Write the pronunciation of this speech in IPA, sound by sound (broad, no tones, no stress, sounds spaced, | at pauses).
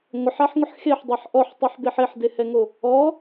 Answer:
ŋʷ ɪ ħ a ħ ŋʷ ɪ ħ x e ħ dˤ a ħ ʔ ɔ ħ tˤ e ħ b e ħ e ħ d e h ɛ ŋ o | ɔ